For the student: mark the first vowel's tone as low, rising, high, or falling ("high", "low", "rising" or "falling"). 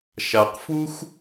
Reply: low